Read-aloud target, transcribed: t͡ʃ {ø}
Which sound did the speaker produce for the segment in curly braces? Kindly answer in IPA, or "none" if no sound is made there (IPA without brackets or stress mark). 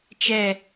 ɛ